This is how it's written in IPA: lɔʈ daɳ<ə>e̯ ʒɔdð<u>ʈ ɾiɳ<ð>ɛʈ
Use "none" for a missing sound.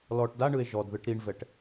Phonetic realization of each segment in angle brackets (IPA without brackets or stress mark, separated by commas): ɯ, ɯ, v